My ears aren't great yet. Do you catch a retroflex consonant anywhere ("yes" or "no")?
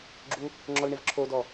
yes